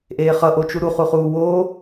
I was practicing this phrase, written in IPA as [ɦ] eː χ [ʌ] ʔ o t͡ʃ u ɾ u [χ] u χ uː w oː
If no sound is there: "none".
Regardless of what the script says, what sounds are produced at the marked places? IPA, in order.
ʔ, ʌ, χ

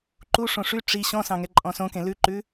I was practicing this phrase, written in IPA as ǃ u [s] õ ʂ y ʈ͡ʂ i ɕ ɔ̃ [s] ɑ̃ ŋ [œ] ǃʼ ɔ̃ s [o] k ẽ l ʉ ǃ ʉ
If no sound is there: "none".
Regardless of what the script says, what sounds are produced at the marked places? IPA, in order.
ʂ, s, ɛ, õ

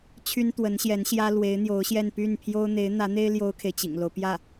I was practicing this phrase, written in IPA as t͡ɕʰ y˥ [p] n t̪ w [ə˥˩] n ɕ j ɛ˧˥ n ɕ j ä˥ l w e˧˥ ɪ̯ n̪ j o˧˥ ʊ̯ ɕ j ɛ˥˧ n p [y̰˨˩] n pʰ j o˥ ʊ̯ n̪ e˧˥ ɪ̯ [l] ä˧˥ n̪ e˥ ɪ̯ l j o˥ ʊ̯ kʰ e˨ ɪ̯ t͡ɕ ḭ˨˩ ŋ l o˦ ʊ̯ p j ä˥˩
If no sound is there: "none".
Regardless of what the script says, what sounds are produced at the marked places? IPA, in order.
none, ə˧˥, y˥˩, n̪

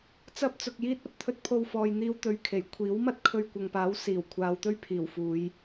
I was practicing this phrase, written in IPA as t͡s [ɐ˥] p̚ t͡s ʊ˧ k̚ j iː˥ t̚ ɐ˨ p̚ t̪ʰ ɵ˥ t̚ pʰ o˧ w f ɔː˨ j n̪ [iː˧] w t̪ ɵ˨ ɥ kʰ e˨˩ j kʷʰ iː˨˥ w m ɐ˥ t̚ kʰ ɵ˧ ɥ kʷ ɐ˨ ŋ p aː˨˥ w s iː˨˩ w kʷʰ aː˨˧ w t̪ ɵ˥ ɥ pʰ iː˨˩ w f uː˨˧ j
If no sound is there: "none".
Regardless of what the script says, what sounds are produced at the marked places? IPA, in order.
ɐ˥, iː˧

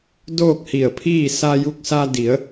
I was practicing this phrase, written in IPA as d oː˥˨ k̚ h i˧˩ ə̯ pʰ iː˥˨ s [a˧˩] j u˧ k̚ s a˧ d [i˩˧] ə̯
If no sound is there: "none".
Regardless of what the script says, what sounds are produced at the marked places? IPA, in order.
a˧, i˩˧

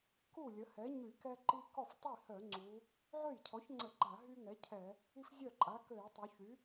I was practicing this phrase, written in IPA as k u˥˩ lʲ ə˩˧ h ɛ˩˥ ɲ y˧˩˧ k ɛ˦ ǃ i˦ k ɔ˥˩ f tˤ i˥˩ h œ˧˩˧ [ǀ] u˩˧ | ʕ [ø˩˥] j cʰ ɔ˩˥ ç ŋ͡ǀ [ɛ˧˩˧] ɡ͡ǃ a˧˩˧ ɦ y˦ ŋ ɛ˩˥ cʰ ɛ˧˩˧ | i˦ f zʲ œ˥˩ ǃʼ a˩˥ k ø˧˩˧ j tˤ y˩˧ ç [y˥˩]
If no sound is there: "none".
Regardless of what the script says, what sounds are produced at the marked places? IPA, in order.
ŋ͡ǀ, ø˥˩, ə˧˩˧, y˩˥

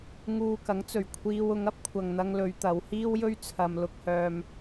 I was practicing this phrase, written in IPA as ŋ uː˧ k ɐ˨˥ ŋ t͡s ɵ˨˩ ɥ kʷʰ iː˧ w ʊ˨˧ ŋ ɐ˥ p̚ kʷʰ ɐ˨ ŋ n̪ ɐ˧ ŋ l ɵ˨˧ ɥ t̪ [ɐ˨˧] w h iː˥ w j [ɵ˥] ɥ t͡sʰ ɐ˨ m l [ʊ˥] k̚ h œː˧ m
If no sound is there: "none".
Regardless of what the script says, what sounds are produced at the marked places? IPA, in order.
ɐ˨˧, ɵ˥, ʊ˧

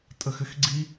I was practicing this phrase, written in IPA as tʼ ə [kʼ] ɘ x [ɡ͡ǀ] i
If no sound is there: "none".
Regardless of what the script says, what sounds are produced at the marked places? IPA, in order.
x, ɡ͡ǀ

